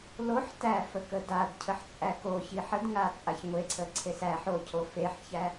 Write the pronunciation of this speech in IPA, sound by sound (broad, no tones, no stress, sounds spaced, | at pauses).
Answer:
l o ħ t æ f ə k ə d a d cʰ ə ħ t͡sʼ æ k o ç i ħ ə d ŋ a t͡sʼ a ç ŋʷ e ǀʰ ə ǀʰ e s æ ħ o cʰ o f e ħ ç æ